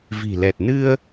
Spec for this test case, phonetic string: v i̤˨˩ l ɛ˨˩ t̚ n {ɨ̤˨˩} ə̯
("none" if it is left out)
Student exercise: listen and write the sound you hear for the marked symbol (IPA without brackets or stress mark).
ɨ˧